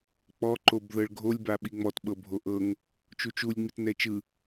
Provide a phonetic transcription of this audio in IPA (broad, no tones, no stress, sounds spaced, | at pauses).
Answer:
k͡p ɔ ǃ o b ð ɤ ɭ ɡʱ o lʲ b a ɓ i ŋ͡m ɔ t ɓ ɤ bʱ o ʔ ɤ ŋ | t͡ʃ u t͡ʃ u lʲ ŋ͡m i t n ɛ t͡ʃ ɯ